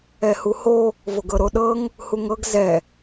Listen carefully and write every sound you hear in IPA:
ɛ h u h o | v o ɡ ɤ ɾ o ɗ ɤ ŋ | h u ŋ ɤ ɡ z ɛ

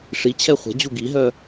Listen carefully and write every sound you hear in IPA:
ʂ i t͡ɕʰ ɛ χʷ ɛ̤ d͡ʑ u ɡ i ɦ œ

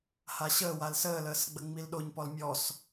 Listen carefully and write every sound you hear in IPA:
h a ɕ əː w a l s əː l əː s ɡ͡b ə ŋ͡m i l ɗ o ɲ p ɔ l mʲ ɔ s

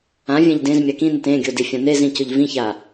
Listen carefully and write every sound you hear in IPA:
ã vʲ ɛ̃ ʎ d ẽ z mʲ a k ĩ n ɪ t ẽ ɡʲ o d i fʲ ã n e z ĩ c ʊ ʎ v ĩ ç a

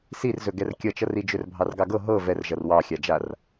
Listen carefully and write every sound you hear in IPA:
s i r z ɵ ɡ ɛ r kʲ ʌ t͡ʃ ʌ r i d͡ʒ ɵ r bʱ ɑ r ɡ ɑ ɡ ɤ ɦ ɤ v ɛ r ʒ ʌ r w ɑ xʲ a d͡ʒ a r

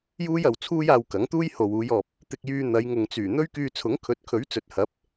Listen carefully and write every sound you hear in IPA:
j uː˥ j ɐ˨ w t͡sʰ uː˥ j aː˧ w k ɐ˨˥ ŋ t̪ uː˥ j h o˨ w uː˨˧ j ɔː˨ p̚ | t̪ ɪ˧ k̚ j yː˧ n̪ ɐ˨˧ j ŋ ʊ˨ ŋ t͡s yː˨˩ n̪ ɵ˥ ɥ k yː˧ t͡sʰ ʊ˨˥ ŋ kʰ ɵ˨˥ t̚ kʰ ɵ˨˥ ɥ t͡s ɵ˨ t̚ h ɐ˨˥ p̚

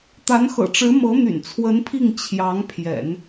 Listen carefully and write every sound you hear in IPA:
t̪ a˧˥ n x ɤ̰˨˩ ʈ͡ʂ ɻ̩˧˥ m ɤ˧˥ n̪ y̰˨˩ n t͡sʰ w ə˧˥ n pʰ i˥˩ ŋ t͡ɕʰ j ɑ˧˥ ŋ pʰ j ɛ̰˨˩˦ n

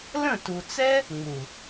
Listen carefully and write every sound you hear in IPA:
l ə̃˦˨ t u˨ t͡s ɛ˦ | ŋ͡m u˨

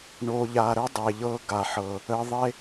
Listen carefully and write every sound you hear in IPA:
ɳ o˨ ʎ a˨ ɾ ə˦ dˤ e˨ ʎ ɤ˦ ɡ a˨ ħ ɤ˨ | ə˨ ðˤ e˦

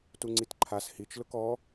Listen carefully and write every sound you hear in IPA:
t u ŋ͡ǀ i t ǃʰ a s h i t͡ʃ l ʊ k ɔ

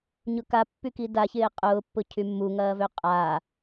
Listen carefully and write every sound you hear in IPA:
ɲ ʊ k a pː y k i d a ç ɪː qʼ ʊː pː ʊ cʰ y mː u ŋ ɐː v ø qʼ a

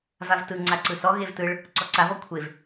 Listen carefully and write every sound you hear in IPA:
v a v t ɯ ŋ͡ǀ a ǀ ɯ s ɔ ɣ e v t ɯ ɭ | ǀ ɔ ǀ a v ɔ kʷʰ e v

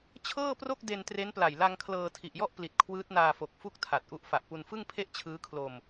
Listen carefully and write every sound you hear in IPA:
t͡ɕʰ ɤː˥˩ p r o˥˩ k̚ d e˧ n t r e˦˥ n p l a˨˩ j l a˧ ŋ kʰ l ɤː˧ tʰ i˨˩ ʔ j ɔ˥˩ ʔ p l i˨˩ t̚ kʰ w ɯː˦˥ t̚ n aː˧ f o˨˩ k̚ f u˥˩ k̚ tʰ a˨˩ t̚ ʔ u˦˥ ʔ f a˨˩ ʔ p u˧ n f ɯ˥˩ ŋ pʰ e˥˩ ʔ t͡ɕʰ ɯː˦˥ kʰ l o˧ m

